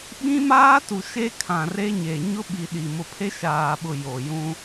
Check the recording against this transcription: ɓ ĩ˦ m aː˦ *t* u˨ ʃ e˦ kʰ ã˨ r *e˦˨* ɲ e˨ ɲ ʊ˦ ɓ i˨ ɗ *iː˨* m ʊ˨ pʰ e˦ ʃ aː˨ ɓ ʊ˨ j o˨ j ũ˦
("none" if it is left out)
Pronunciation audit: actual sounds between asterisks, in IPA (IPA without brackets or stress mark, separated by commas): t, e˦, i˨